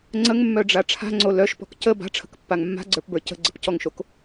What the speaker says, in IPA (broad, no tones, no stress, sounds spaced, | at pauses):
ŋ͡ǀ ə ŋ mː œ ɖ͡ʐ a ʈ͡ʂʰ a̤ ŋ͡ǀ o l œ ʃ p ɔ̤ k c ə b a̤ ʈ͡ʂʰ ə̤ k pː a ŋ mː a̤ ɡ͡ǀ ə˞ p b ə˞ c ə̤ ɡ͡ǀ ə̤ p c ɔ ŋ ʃ o k